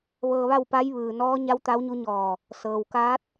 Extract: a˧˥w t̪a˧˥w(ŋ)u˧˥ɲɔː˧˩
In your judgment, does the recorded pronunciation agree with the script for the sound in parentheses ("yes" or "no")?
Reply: no